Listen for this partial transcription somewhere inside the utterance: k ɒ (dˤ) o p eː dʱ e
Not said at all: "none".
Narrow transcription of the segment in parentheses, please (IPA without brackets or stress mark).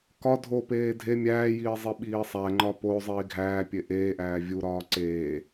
dʱ